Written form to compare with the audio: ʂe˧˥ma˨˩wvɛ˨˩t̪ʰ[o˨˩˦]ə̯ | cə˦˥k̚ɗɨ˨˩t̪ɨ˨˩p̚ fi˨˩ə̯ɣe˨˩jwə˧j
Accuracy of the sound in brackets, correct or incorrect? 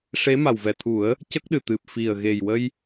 incorrect